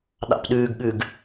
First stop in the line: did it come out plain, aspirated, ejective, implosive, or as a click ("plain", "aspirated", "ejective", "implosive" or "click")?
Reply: implosive